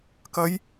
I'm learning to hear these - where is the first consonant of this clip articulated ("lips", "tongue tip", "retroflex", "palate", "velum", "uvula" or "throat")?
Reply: velum